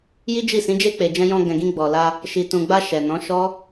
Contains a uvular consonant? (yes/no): no